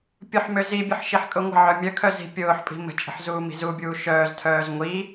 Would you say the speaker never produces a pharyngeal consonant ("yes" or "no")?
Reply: no